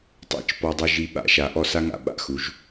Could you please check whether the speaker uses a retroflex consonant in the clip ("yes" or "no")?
no